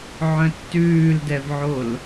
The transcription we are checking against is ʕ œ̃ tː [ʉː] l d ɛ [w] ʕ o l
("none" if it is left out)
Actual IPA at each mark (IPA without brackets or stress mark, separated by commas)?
ʉː, v